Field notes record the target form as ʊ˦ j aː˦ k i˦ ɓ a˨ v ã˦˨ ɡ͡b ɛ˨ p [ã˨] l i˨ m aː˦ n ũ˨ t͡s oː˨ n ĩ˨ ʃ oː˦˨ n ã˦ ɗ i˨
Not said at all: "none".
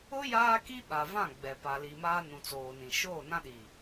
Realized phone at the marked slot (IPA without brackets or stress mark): a˨